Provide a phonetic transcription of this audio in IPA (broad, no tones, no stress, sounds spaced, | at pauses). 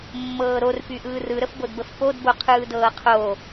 mː ɤː ɾ o r p y ʔ ɯː r ɯ ɾ ə f b o d b ə f p o d b o qʰ ɯː d ɤː qʰ o